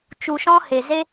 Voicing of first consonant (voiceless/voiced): voiceless